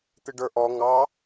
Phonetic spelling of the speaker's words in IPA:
t̪ ɪ ɖ ə˞ ʔ ɔ ŋ ɑ

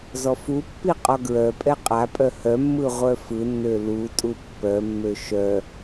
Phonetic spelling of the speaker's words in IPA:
z ɔ f u pː i qʼ ɔ ɡ ɹ œ pʼ ɛ qʼ a pʼ œ h œ mː ɯ ʁʷ œ f ɯ nː ø l u tʼ u pː œ mː ø ʃ œ

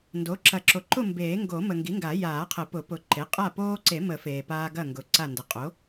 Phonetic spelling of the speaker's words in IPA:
n d o˩˥ ǁ ɐ˨˩˦ ǁ o˨ ǃ ʊ˥˨ m b eː˨˩˦ ŋ ɡ o˨˩˦ m ə˨ ŋ ɡ i˩˥ ŋ ɡ a˨˩˦ j aː˨˩˦ qʰ ə˨˩˦ p ʊ˨˩˦ p ʊ˨ ǃ e˩˥ qʼ a˥˨ p oː˦ ǀ e˨˩˦ m ə˨˩˦ f eː˨ p aː˦ ɡ ɐ˥˨ ŋ ɡ ʊ˨˩˦ ǀ a˥˨ n d ə˨˩˦ qʼ o˩˥

